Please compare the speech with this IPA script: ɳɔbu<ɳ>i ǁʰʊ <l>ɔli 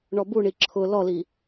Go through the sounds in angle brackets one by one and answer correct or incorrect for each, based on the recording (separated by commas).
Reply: correct, correct